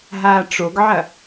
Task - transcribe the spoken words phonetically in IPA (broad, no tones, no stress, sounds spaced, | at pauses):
ɦ aː ʈ͡ʂ o ɡ ʕ ɐ